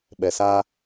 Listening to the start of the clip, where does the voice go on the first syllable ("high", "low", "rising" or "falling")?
low